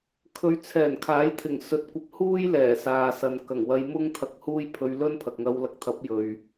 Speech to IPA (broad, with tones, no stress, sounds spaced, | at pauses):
kʰ ɵ˨˧ ɥ t͡sʰ ɛː˨˩ n kʰ aː˨˥ j t̪ʰ ɪ˨˩ ŋ s ɵ˨ t̚ kʷ ɐ˧ p̚ h uː˥ j l ɛː˨˩ s aː˨ s ɐ˨ n k ɐ˨˩ ŋ w ɐ˧ j m ʊ˥ ŋ t̪ʰ ɐ˧ k̚ h uː˥ j pʰ ɵ˧ ɥ l ɵ˥ n pʰ ɐ˨ k̚ ŋ ɐ˧ w l ɐ˧ k̚ t̪ʰ ɐ˨˥ p̚ j ɵ˨ ɥ